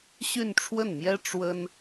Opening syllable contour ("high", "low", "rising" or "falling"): falling